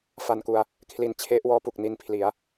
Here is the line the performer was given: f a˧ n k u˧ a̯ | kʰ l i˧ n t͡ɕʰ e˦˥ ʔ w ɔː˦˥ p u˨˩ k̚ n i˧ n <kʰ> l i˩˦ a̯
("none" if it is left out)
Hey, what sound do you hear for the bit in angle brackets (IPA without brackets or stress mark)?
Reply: pʰ